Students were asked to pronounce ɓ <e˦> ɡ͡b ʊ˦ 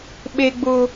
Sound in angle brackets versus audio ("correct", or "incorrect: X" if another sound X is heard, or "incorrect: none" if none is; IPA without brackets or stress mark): correct